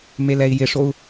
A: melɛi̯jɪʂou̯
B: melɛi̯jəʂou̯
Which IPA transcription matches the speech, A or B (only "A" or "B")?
A